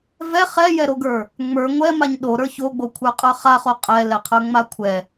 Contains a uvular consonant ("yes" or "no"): yes